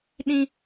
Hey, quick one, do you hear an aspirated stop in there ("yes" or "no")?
no